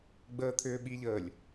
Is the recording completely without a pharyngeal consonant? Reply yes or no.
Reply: yes